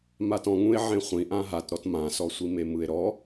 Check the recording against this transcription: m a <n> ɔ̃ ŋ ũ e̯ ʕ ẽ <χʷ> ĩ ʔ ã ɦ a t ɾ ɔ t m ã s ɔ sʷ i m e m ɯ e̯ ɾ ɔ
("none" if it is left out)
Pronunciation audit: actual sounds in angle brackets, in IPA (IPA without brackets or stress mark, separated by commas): t, χʷ